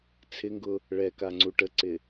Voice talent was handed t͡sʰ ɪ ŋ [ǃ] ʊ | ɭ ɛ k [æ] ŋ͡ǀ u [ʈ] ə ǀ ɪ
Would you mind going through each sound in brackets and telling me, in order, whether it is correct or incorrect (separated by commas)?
incorrect, incorrect, correct